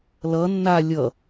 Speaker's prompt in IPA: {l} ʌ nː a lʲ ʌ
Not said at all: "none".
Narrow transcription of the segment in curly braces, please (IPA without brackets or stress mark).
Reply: l